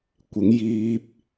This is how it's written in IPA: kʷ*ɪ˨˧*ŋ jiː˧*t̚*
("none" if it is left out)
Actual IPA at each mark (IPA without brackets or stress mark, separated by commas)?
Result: ɪ˨˧, p̚